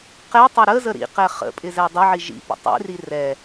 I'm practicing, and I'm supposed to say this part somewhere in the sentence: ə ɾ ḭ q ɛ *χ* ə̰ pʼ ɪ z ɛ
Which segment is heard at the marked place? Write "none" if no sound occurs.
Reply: χ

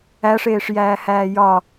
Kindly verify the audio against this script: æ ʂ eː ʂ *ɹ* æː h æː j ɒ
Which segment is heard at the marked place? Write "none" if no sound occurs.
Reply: j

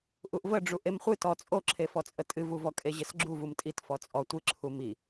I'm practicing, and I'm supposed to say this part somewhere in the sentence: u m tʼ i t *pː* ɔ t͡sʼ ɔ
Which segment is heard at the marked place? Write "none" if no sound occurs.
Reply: f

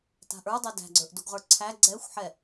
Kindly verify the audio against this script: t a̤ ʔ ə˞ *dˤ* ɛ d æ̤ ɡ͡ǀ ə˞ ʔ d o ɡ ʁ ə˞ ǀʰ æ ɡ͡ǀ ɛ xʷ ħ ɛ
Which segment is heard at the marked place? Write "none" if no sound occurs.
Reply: dˤ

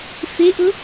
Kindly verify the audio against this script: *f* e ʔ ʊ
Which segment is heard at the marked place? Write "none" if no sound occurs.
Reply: f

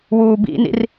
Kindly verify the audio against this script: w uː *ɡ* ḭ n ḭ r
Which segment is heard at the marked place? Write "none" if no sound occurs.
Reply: b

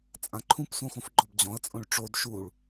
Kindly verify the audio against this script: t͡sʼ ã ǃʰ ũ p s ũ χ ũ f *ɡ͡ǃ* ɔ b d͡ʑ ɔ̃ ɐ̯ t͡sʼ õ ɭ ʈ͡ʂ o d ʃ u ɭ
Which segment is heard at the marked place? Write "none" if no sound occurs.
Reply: ɡ͡ǃ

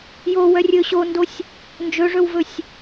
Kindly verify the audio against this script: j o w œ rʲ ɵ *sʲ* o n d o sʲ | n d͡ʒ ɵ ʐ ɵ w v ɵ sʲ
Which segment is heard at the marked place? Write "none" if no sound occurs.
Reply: ɕ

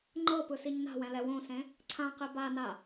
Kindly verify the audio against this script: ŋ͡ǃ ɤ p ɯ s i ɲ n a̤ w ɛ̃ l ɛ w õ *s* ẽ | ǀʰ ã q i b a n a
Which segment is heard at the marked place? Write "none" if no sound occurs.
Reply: s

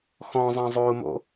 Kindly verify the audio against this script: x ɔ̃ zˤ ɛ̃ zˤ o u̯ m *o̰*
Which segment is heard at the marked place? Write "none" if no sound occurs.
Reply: o̰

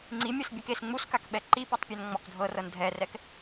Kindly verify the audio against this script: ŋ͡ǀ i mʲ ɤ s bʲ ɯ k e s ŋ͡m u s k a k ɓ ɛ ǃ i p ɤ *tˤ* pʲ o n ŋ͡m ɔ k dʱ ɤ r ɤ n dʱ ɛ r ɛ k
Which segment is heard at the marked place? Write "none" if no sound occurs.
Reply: tˤ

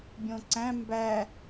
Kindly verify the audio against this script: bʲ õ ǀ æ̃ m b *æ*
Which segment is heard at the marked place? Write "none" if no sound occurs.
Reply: æ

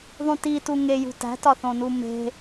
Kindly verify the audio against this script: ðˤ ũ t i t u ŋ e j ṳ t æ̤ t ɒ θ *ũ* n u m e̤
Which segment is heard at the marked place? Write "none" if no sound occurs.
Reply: õ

